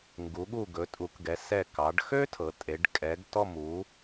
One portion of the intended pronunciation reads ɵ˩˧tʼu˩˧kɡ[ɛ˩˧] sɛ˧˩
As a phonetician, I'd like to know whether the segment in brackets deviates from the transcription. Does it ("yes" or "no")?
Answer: no